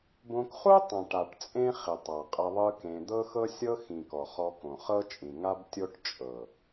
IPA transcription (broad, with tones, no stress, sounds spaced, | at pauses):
b õ˧ k χ u˦ tˤ ã˨ ʈ a˨ ʈ t͡sʼ ẽ˦ χ i˨ tˤ a˨ qʼ e˧ ðˤ ɯ˦ k ẽ˧ d̪ ɤ˦ x ɤ˦ sʲ ɤ˦ x ĩ˨ k ɔ˨ χ ɔ˧ k õ˨ χ ɤ˦ t͡ʃʼ ĩ˨ ŋ a˦ b tʲ o˦ ʈ t͡ʃʼ ɤ˨